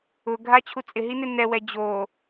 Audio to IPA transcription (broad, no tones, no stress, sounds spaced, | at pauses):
ʊ ɡʱ a t͡ɕʰ u t͡sʼ ɪ ɦ i n ɪ n ɛ w ɛ d͡ʑ o